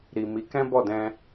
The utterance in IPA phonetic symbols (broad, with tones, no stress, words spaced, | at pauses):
ɾi˨mi˨˦kɛ̃˦ bɔ˦˨dɛ̃˧